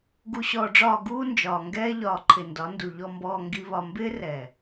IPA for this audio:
ɡ u˨ ɕ ɔː˨ ɖ͡ʐ ɒː˨ ɡ uː˦ n d͡ʒ ɒː˨ ŋ ɡ ɛː˦ ʎ ɒː˨ ǃʰ ɪ˨ n d ɒ˨˦ n d u˨ ʎ ɔ˨ m b ɔː˨ ŋ ɡ i˨ β ɒ˨ m b ɪː˦ r ɛː˨

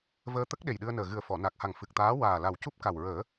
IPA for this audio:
v əː˧ t̪ ə˦˥ k̚ ɗ e˨˩ j ɗ ɨ˧ ə̯ n əː˨˩ ɣ ɨ˨˩ ə̯ f ɔ˨˩˨ n a˨˩ k̚ h a˨˩ ŋ f ɨ˨˩ k̚ t̪ aː˧˥ w aː˨˩ l a˨˩ w c u˦˥ p̚ k a˨˩ w ɹ əː˨˩˦

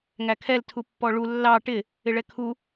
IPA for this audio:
ŋ æ kʰ ɛ l tʰ u pː ɔ ɭ u lː ɑ ʈ ɪ | ɪ ɭ ɛ kʰ u

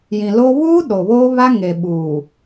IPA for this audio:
j ĩ˨ l o˦ β uː˦ ɗ o˨ β oː˦ β a˦ ŋ e˨ ɓ uː˨

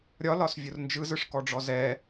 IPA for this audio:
ɾʲ ɒ l ɒ s vʲ ʊ r n d͡ʒ ɯ z ɯ ʂ k ɔ ɖ͡ʐ ɔ z ɛ

